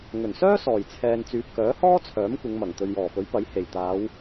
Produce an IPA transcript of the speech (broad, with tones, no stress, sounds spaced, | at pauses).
ŋ ɵ˨˩ n s œː˥ s ɔː˨˩ j t͡sʰ ɛː˨ n t͡s yː˨ p̚ k œː˨˥ h ɔː˥ t͡sʰ œː˨˥ m kʷ ɪ˨˧ ŋ m ɐ˨˩ ŋ t̪ ɵ˨ ɥ j ɔː˨˩ f ɵ˨˥ ɥ p ɐ˨˥ j h e˨˩ j t̪ aː˨˧ w